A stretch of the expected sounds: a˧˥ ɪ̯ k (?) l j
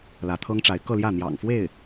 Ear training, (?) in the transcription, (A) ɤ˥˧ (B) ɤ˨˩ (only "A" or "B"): A